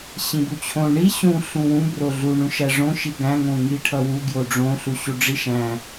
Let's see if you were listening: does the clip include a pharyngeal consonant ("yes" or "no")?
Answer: no